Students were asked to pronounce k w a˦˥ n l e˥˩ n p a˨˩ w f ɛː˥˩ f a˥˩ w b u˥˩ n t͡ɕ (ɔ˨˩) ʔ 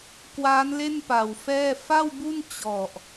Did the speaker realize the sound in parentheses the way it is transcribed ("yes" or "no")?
yes